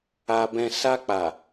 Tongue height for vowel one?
low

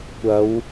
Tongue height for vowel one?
low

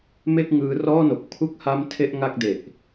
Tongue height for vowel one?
mid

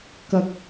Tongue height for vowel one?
low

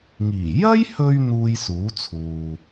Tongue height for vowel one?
high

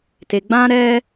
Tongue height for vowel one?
mid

